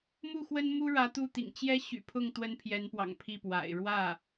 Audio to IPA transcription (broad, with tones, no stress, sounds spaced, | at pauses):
m u˥˩ x w ə˥ n m u˥ ɻ ä˧˥ t̪ u˥˩ t̪ ḭ˨˩ ŋ t͡ɕ j ɛ˥ ɕ y̰˨˩ pʰ ʊ˥˩ ŋ t̪ w ə˥ n pʰ j ɛ˧˥ n p w ɑ̰˨˩ ŋ pʰ i˥˩ p w a̰˨˩ ɪ̯ ɻ w ä˥˩